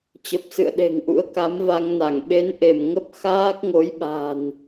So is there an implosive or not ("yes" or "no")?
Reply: yes